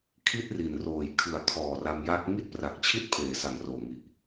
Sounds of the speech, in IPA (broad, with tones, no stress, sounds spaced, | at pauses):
kʰ i˥˩ t̚ r i˨˩ n r oː˨˩ j kʰ ɯ˩˦ a̯ kʰ ɔː˨˩ r a˧ m j a˦˥ k̚ ŋ i˥˩ t̚ p r a˨˩ k̚ t͡ɕʰ i˥˩ t̚ pʰ eː˩˦ s a˨˩ ŋ r oː˨˩ ŋ i˨˩ ʔ